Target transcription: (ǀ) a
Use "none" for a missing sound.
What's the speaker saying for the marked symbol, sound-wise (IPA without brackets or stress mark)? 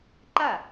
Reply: ǃ